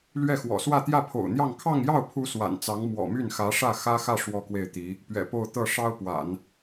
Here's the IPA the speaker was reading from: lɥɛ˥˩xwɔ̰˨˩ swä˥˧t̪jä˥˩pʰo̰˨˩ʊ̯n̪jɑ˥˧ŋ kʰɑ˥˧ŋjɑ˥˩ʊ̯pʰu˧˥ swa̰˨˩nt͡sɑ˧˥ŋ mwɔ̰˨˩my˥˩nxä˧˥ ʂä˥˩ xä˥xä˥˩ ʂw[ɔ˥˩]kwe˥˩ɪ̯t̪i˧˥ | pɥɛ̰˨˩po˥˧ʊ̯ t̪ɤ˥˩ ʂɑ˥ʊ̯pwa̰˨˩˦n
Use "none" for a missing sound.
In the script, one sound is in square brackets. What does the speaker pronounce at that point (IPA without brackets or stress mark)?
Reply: ɔ˥